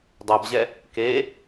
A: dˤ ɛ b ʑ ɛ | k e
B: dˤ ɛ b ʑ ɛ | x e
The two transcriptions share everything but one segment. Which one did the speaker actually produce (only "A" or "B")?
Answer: A